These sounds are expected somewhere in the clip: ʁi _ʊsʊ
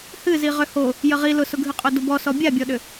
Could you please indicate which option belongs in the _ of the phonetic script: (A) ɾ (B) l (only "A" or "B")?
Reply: B